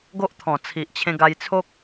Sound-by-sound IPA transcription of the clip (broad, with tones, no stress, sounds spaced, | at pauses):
ɡ o˦ ʔ t̪ʰ ɔ̃˨˩ t͡sʰ i˨ ʔ t͡ɕʰ ẽ˧ ɡ a˧ j t͡sʰ o˦ k̚